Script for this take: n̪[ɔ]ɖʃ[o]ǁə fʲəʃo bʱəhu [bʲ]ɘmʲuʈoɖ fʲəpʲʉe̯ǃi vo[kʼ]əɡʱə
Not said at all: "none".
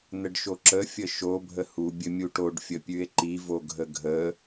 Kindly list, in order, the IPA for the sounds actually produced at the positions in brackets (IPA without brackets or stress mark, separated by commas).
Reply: ə, o, bʲ, ɡʱ